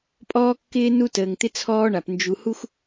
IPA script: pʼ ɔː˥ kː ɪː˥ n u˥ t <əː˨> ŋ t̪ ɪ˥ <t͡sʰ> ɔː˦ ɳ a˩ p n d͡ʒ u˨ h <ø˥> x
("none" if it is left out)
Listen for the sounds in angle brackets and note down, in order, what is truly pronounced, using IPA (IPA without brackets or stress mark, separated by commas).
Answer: əː˨, t͡sʰ, u˥